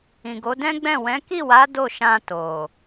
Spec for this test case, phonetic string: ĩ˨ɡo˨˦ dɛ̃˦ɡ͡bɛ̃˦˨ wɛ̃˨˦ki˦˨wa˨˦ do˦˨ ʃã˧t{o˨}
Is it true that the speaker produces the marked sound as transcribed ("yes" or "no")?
yes